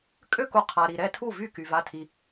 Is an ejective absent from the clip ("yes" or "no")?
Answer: no